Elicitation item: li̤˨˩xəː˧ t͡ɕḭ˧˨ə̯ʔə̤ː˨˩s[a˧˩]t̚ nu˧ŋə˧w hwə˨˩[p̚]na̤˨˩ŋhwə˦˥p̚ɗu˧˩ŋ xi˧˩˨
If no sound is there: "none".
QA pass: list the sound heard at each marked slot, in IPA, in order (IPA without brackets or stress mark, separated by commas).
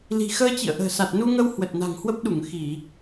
a˨˩, t̚